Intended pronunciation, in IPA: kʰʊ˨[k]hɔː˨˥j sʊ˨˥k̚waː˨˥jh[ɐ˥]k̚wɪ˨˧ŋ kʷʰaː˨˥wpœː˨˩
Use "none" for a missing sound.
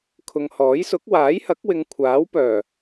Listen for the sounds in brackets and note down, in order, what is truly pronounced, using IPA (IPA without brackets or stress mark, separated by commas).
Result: ŋ, ɐ˨˥